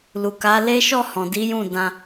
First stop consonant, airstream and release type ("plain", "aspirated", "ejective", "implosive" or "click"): plain